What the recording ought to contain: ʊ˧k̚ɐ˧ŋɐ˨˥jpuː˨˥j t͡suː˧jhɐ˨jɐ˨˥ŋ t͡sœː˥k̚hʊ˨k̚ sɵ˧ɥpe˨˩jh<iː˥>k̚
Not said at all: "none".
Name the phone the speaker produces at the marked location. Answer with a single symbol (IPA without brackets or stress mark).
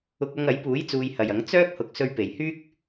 yː˥